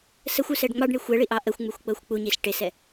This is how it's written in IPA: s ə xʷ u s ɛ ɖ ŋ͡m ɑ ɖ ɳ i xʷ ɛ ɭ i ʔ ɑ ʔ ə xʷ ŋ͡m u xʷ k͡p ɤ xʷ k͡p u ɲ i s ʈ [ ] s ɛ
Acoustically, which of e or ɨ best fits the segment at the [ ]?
e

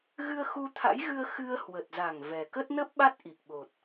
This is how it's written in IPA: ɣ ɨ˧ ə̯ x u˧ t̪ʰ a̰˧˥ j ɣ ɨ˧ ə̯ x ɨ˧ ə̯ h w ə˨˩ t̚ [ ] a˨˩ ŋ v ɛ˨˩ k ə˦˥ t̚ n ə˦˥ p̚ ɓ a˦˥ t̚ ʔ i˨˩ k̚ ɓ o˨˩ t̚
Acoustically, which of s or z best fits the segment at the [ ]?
z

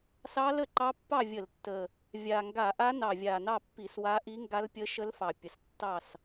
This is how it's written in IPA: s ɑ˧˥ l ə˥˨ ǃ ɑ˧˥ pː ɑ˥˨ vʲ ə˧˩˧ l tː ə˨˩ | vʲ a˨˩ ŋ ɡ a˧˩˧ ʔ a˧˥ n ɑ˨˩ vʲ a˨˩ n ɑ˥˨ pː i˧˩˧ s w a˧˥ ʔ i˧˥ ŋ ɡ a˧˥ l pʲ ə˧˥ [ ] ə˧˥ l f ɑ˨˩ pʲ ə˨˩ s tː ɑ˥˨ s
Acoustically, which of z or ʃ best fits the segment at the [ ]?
ʃ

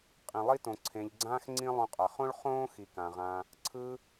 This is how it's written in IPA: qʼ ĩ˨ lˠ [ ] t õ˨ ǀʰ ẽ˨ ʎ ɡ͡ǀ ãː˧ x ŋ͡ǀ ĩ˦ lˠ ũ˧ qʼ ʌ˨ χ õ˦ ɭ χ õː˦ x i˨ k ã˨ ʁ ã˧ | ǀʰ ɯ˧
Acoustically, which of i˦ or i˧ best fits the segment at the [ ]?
i˦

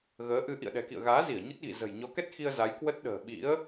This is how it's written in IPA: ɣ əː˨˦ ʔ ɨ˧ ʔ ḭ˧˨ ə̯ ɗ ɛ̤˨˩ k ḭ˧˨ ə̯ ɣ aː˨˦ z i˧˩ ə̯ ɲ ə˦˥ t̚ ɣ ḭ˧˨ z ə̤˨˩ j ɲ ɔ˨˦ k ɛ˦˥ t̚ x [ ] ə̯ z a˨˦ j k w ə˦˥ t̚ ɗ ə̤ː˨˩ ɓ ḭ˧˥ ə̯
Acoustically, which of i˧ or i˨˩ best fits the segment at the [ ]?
i˧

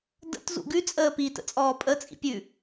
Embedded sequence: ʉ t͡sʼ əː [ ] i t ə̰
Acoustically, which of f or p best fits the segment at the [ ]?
p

